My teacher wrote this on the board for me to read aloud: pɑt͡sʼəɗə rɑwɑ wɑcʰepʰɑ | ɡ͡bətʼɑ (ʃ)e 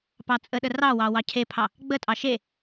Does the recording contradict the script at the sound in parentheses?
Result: no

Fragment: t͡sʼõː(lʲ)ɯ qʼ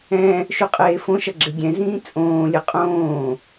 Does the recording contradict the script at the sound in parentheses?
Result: no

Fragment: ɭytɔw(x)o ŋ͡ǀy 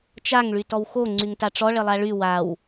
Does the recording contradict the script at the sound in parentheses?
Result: no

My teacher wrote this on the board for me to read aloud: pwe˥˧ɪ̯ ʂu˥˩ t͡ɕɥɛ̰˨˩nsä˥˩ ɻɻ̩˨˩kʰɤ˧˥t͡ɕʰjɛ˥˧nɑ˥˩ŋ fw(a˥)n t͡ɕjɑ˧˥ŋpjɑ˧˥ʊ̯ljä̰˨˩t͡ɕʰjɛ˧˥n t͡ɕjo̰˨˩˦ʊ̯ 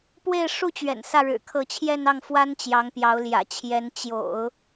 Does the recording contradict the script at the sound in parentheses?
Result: no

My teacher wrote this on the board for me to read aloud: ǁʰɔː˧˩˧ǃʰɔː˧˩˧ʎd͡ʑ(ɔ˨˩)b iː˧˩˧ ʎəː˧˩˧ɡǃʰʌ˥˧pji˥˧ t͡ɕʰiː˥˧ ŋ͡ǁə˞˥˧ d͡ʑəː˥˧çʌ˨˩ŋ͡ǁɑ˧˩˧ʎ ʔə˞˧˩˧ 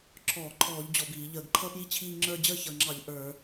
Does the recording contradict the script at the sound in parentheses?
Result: no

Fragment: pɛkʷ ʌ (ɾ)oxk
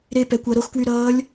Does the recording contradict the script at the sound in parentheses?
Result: no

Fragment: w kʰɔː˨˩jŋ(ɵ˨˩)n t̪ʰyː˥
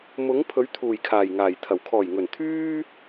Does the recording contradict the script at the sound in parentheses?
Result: no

